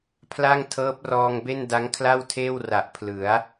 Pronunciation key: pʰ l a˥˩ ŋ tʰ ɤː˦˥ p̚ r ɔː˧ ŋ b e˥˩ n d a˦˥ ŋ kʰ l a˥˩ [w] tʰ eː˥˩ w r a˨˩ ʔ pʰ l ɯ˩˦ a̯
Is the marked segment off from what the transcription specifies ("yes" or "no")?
no